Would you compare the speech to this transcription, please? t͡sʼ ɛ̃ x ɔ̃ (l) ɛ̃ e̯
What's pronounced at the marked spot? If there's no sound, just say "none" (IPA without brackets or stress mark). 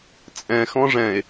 ʐ